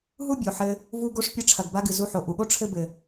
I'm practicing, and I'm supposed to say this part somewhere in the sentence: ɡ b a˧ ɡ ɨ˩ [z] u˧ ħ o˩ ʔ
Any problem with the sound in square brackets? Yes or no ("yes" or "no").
no